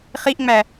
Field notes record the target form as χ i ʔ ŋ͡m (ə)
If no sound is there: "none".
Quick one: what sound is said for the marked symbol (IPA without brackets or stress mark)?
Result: æ